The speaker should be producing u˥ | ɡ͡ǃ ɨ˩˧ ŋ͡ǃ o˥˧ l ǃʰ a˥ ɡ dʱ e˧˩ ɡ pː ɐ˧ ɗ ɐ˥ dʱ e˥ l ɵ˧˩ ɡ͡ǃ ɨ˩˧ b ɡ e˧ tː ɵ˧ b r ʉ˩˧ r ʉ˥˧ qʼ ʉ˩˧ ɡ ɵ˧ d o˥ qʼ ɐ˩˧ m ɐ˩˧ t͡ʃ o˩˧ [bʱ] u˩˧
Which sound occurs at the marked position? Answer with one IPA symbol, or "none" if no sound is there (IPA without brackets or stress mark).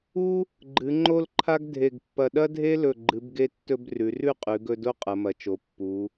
pː